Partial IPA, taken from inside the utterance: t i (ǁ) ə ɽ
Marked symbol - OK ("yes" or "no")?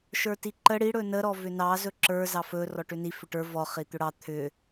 no